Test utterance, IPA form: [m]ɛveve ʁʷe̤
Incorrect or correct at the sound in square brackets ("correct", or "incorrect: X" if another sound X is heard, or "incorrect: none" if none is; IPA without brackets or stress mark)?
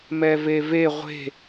correct